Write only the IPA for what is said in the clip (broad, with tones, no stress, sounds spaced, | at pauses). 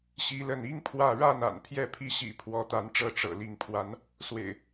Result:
ɕ i˦ l ə˥˨ n i˦ ŋ pʰ w ä˥˨ ɻ a˥˨ n a̰˨˩ n pʰ j ɛ˥˨ pʰ i˥˨ ɕ ḭ˨˩ pʰ w ɔ˨˦ t̪ a˨˦ n ʈ͡ʂ ɤ˥˨ ʈ͡ʂ ɤ̰˨˩ l i˨˦ ŋ pʰ w a˨˦ n | s w ḛ˨˩ ɪ̯